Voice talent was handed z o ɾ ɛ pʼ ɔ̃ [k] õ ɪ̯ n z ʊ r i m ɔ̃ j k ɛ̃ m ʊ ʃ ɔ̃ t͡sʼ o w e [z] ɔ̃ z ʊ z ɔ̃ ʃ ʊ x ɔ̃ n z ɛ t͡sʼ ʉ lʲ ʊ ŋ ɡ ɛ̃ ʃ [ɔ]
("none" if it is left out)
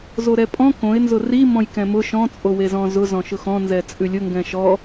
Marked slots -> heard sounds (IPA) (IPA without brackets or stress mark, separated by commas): k, z, ɔ